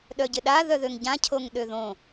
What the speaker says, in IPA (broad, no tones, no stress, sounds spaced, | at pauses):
ɗ œ ɟ ɪ ɗ a ð œ ð ø ŋ ɟ ã cʰ o ŋ ɗ ø ð õ